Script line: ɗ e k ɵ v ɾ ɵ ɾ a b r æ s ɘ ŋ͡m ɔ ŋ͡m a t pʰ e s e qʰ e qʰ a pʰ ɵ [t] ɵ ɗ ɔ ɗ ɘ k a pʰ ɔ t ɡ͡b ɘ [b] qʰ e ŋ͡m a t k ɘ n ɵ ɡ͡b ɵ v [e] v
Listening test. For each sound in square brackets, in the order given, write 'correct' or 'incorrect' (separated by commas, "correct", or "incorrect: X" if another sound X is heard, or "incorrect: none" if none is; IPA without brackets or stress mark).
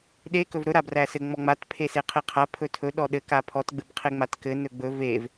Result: incorrect: tʰ, correct, correct